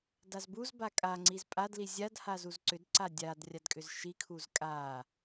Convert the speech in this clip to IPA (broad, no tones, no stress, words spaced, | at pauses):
dazbuzba kʼaŋ͡ǀiz pʼadli zʲadhaz uzǀʏdǀa dʲad rʲadkʼʏzʃikʰuz kʼa